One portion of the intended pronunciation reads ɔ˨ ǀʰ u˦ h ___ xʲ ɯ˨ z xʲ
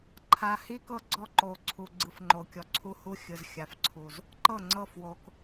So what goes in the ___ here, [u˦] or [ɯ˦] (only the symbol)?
u˦